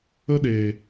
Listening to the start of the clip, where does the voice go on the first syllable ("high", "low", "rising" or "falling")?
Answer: high